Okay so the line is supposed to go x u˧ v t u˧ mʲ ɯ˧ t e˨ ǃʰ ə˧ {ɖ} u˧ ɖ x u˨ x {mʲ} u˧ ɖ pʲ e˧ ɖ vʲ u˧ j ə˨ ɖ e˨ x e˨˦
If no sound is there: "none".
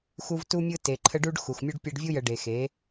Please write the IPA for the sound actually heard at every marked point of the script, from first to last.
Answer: ɖ, mʲ

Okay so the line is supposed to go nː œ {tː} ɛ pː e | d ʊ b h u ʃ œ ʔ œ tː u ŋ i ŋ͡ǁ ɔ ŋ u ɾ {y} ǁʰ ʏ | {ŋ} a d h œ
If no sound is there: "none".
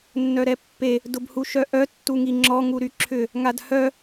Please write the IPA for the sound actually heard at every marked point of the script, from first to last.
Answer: ɾ, y, ŋ

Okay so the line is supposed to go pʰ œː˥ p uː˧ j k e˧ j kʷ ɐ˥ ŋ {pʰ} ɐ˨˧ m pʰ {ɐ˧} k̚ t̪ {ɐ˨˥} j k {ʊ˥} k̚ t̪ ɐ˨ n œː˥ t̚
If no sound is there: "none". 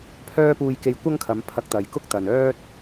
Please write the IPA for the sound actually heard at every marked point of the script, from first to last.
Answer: kʰ, ɐ˧, ɐ˨, ʊ˥

